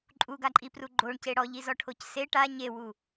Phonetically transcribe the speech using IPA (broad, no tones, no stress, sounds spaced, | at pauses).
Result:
ǃʼ u ɡ a ǃʼ i p r u ɡ͡ǃ o ɳ c e ɽ ɔ ʎ i z ɔ ʈʰ o c s e ʈ a ɲ e w u